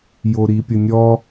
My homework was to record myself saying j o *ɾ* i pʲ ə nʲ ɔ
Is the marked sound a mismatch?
no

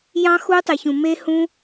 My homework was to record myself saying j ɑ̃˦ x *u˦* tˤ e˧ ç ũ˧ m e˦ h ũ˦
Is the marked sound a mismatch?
no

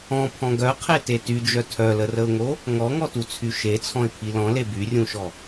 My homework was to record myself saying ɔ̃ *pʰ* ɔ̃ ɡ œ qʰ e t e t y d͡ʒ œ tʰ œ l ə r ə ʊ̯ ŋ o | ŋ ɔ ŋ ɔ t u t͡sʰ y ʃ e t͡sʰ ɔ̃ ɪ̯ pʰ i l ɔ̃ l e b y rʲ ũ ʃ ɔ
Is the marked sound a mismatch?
no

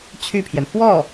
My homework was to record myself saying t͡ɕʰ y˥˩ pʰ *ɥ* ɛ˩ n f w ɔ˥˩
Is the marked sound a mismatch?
yes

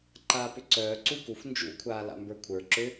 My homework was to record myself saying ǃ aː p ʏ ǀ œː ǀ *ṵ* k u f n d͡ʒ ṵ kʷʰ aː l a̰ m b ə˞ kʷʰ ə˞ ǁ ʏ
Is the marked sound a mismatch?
yes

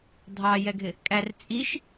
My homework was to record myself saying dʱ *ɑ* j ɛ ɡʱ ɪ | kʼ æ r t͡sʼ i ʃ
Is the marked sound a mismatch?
no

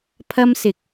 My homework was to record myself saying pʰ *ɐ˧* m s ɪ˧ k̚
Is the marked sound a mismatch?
yes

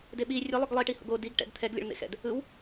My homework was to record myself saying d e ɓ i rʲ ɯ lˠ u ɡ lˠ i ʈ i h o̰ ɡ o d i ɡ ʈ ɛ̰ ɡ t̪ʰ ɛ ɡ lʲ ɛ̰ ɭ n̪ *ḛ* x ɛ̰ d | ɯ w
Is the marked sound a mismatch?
no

